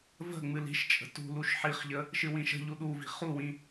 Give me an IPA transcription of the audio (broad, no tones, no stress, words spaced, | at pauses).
və̤ ŋ͡mɨli̤ʃt͡ʃʼə̤ tṳ luʃħiχʎə | ʃɨwĩʃə̤ʎu ɗuvi̤ χuwĩ